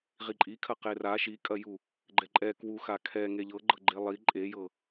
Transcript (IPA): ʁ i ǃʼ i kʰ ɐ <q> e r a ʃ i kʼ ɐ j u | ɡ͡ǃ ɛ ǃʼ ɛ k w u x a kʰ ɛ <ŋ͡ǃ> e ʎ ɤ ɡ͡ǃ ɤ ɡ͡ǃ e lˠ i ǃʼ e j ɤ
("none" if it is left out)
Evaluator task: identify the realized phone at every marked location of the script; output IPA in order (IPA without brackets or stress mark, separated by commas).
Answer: q, ŋ